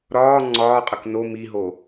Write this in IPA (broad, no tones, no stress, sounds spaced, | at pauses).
ɾ ɒː ŋ͡ǀ ɒː qʼ ə k n o m i ɦ o